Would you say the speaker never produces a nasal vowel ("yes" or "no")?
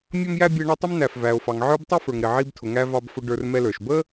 yes